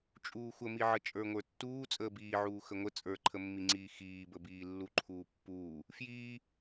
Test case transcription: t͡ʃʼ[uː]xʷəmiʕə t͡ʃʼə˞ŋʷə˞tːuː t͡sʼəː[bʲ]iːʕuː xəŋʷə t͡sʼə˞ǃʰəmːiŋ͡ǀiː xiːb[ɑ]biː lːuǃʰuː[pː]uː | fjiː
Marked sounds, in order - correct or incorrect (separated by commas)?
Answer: correct, incorrect, incorrect, correct